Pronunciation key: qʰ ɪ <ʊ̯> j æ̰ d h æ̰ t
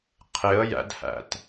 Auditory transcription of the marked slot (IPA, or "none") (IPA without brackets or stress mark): ə̯